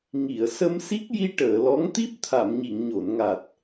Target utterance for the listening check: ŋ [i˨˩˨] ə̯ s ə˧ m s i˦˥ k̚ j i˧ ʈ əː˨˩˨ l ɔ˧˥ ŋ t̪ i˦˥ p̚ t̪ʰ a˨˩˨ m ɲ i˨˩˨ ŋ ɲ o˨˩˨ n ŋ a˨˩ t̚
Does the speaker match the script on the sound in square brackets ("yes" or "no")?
yes